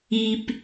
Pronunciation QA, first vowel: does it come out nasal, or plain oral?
oral